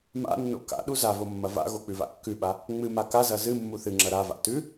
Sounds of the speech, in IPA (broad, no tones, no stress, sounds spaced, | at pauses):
m a̰ nː o̰ k a̰ ɗ u z a v o mː ɐ v a̰ ɣ o k͡p ʉ v a̰ kː ʉ ɓ a | ŋ͡m ɨ m a k a z ɐ z ɨ mː u θ ɨ ŋ͡ǁ ɐ ɾ a v a̰ t ʉ